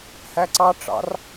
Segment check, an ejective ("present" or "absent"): absent